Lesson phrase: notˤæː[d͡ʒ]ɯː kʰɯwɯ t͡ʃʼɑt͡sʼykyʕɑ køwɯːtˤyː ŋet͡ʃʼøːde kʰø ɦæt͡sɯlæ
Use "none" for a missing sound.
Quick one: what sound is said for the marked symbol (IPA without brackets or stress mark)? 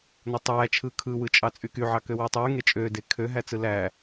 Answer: t͡ʃʰ